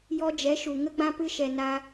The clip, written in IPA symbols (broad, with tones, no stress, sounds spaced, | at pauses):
j ɔ˧ d͡ʒ ɛ˨˦ ʃ u˨ ŋ ə˧ ɡ͡b ã˧ p ɨ˧ ʃ ɛ˨ n a˧